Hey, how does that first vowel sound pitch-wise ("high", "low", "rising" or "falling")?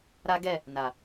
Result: high